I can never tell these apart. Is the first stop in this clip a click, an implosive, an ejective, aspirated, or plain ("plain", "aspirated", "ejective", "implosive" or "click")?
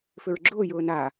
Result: click